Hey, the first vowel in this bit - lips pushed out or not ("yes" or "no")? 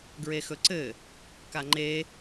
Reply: no